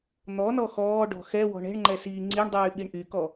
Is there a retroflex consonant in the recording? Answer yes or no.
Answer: yes